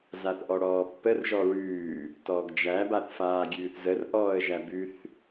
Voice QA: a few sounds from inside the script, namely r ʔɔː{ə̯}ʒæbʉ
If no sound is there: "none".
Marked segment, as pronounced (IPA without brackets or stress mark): ə̯